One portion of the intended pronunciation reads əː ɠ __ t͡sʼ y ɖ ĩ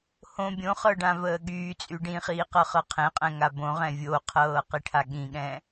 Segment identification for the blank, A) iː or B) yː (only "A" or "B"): B